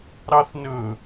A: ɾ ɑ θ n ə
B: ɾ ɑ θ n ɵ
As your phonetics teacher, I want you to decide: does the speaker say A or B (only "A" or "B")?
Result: B